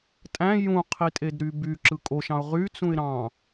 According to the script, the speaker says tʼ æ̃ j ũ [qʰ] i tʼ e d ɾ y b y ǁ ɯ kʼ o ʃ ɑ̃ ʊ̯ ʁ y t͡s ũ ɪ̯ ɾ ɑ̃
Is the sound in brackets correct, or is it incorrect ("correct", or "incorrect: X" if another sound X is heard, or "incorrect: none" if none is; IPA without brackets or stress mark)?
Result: correct